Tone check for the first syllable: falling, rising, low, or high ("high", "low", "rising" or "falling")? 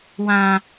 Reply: low